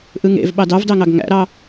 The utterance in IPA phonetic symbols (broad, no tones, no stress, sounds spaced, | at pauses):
ʔ ɯ ŋ ḛ v ɓ ɑ d ɑ v d ɑ ŋ ɑ ɡ ŋ æ̰ ɾ ɑ